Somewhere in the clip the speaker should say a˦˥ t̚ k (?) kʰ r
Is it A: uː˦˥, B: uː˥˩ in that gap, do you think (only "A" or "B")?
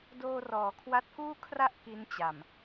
B